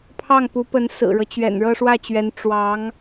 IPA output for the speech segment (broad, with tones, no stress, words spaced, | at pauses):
pʰɑ˥˩ŋpu˧˥pə˧˥n sɹ̩˨˩ɻɤ˦ t͡ɕɥɛ̰˨˩nɻɤ˥˧ʂwä˥˩t͡ɕɥɛ˧˥n ʈ͡ʂwɑ˧˥ŋ